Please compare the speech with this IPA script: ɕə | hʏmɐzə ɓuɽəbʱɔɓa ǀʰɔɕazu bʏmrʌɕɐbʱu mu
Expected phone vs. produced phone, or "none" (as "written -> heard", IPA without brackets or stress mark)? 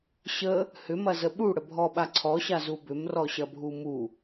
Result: ʌ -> ɔ